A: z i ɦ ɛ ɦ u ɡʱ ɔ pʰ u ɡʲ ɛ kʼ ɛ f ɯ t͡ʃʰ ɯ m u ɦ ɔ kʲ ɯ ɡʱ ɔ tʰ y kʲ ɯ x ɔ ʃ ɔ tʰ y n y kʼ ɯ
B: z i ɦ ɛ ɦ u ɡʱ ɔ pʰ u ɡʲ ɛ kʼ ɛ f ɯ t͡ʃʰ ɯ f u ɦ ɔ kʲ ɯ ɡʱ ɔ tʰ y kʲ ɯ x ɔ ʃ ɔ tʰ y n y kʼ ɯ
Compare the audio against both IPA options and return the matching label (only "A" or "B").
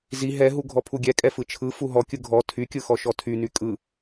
B